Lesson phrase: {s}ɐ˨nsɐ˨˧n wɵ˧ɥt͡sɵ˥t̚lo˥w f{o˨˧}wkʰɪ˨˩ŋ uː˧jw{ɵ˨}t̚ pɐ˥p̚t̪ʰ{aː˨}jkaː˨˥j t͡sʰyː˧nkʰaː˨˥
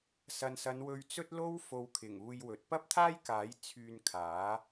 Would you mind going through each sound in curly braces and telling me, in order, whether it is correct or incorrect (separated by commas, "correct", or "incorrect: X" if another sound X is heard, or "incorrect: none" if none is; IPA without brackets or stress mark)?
correct, correct, correct, incorrect: aː˥